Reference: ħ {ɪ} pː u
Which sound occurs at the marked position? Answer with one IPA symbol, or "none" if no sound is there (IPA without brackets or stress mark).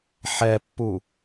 ɛ